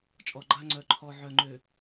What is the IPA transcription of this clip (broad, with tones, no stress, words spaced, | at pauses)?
t͡ʃʼɔ˨ɡ͡ǃa˦ ŋ͡ǀœ˨ǃʰɔ˨ ʕœ˨ŋ͡ǃø˨